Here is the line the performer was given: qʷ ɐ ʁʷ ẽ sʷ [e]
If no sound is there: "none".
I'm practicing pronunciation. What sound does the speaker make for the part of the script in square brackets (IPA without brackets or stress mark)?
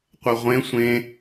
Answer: ẽ